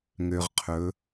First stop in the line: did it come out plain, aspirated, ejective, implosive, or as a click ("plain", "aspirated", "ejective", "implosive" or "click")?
aspirated